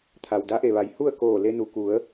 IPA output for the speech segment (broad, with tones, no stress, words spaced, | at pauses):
t̪ʰa˩wda˧˥ʔe˩ʋa˩˧j hu˥˨ə̯koː˧˩ le˧nu˩ ku˩˧ə̯